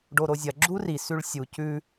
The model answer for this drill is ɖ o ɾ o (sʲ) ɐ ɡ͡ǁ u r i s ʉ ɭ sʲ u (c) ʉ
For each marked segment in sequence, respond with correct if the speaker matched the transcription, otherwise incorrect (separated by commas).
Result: incorrect, correct